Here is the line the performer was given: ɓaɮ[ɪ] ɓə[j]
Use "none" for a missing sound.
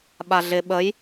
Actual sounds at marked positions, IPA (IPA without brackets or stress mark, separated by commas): ɪ, j